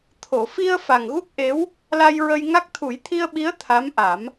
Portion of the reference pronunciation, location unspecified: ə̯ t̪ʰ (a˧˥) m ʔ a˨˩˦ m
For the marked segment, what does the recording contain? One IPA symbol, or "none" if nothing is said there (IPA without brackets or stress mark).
a˧˥